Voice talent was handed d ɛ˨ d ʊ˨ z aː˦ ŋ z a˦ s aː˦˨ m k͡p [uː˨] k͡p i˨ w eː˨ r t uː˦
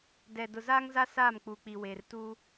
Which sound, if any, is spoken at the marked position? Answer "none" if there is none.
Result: uː˨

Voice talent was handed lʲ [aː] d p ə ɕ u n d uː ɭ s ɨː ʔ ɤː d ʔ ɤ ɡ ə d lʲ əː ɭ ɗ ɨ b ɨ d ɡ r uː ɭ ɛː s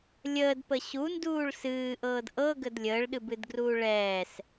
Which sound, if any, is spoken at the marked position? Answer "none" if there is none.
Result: əː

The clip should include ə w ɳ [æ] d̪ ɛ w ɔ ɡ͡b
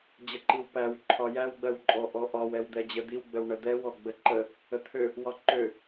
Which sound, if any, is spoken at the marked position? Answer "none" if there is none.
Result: ə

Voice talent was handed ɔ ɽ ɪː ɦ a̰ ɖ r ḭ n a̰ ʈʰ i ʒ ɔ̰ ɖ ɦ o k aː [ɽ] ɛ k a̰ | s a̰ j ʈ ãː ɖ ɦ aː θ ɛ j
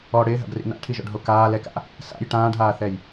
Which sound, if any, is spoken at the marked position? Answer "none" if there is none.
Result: l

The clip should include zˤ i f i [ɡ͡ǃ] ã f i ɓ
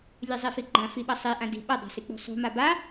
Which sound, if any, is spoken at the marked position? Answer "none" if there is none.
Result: ɡ͡ǃ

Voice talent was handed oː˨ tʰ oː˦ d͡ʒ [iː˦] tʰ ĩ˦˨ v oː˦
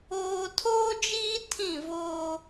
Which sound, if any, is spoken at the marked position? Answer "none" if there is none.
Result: iː˦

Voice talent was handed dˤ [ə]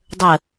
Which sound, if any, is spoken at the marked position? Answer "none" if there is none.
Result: ə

